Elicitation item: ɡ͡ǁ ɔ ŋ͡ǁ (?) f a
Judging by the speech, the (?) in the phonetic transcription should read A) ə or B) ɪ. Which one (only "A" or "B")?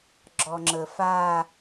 A